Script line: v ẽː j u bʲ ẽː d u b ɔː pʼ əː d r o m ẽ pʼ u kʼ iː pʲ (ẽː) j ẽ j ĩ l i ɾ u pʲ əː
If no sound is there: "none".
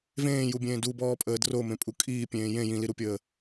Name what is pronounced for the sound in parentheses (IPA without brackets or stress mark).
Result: ẽː